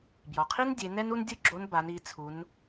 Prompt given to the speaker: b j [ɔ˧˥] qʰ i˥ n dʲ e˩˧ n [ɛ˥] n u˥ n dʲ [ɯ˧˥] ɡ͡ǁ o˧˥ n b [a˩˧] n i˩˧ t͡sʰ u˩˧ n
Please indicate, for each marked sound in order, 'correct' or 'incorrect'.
incorrect, correct, incorrect, correct

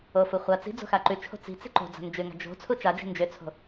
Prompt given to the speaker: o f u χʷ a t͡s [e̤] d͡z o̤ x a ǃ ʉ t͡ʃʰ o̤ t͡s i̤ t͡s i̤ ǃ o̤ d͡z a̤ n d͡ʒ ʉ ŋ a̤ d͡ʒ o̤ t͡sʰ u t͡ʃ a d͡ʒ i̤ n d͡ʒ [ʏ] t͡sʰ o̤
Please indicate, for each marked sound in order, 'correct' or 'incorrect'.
incorrect, correct

